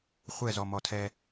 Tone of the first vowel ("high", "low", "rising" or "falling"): falling